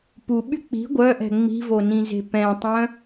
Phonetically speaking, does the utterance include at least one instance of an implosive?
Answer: yes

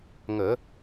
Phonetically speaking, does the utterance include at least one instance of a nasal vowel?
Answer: no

